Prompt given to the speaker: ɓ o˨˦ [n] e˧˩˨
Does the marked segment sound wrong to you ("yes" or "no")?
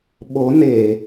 no